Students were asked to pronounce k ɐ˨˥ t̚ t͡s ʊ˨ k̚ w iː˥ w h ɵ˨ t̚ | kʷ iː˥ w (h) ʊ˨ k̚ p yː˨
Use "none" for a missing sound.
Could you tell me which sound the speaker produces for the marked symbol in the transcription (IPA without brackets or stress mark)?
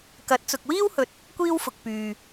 f